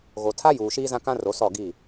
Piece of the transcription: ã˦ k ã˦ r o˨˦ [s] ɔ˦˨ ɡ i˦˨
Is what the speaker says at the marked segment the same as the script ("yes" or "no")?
yes